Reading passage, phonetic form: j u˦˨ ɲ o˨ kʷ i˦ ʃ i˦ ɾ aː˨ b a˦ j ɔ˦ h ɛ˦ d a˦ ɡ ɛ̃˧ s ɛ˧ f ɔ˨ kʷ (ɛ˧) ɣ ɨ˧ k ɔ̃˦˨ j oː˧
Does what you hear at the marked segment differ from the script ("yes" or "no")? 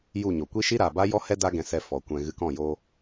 yes